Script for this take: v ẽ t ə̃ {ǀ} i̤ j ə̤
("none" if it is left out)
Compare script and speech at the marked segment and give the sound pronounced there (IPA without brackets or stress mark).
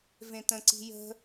ǀ